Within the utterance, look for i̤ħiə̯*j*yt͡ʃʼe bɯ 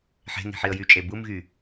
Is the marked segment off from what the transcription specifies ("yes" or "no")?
no